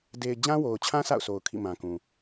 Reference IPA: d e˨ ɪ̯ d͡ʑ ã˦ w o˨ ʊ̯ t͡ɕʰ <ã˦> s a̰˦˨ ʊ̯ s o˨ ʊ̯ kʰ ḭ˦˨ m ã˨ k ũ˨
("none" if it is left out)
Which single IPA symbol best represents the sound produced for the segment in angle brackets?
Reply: ã˦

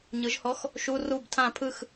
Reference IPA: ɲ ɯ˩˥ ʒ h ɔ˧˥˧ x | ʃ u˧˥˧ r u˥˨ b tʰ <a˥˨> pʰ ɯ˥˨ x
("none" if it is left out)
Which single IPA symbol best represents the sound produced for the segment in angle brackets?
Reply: ã˥˨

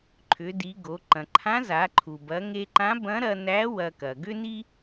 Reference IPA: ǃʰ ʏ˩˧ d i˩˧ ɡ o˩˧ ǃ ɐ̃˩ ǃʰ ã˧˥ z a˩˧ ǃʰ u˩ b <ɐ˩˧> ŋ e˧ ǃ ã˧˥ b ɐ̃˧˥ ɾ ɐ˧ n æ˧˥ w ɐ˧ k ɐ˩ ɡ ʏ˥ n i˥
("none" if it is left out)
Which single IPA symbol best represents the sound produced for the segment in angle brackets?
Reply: ɐ˩˧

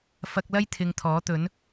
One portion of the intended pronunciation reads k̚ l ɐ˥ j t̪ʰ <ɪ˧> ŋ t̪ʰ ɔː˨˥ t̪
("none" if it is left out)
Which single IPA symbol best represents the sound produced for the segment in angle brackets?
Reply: ɪ˧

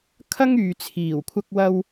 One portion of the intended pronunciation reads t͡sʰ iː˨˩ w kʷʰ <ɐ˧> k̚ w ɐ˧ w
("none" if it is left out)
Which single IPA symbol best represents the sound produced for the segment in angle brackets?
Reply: ɐ˧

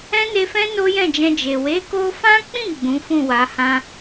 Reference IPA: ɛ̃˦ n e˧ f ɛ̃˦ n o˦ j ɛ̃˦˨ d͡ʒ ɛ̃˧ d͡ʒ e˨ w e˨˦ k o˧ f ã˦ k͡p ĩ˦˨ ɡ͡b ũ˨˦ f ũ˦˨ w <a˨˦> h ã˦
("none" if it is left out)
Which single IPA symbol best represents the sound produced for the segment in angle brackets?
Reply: a˨˦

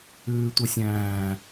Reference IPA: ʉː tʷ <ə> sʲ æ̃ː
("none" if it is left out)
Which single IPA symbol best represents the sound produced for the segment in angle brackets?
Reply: ə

